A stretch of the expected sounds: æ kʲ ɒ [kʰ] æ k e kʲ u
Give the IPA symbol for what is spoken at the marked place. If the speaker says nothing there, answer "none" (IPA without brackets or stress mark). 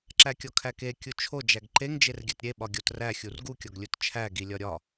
kʰ